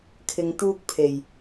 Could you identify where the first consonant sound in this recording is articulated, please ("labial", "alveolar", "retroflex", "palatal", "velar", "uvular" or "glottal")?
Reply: velar